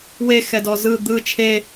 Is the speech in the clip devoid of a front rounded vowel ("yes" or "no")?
yes